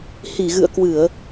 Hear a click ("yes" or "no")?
no